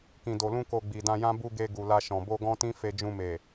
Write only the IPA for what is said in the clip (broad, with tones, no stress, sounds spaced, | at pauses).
k ĩ˨ d o˨ l ũ˧ k o˨ ɡ͡b i˨ d ã˧ j ã˦ b u˧ ɡ e˧ ɡ u˨ l a˧ ʃ ɔ̃˨ b o˧ ɡ ɔ̃˦ t ĩ˦ f e˧ d͡ʒ ũ˧ m e˨